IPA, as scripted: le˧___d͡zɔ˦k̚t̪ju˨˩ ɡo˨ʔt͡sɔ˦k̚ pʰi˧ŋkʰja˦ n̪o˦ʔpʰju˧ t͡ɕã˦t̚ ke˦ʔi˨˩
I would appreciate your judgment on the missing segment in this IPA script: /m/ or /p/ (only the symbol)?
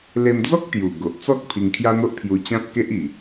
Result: m